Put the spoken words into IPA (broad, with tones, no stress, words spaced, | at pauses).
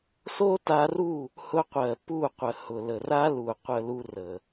so˦ta˧ru˦˨ | hʊ˧qʷɜ˨ pu˦˨qʷə˨ hʊ˨lə˨ra˦lu˨ qʷə˦lu˦rə˨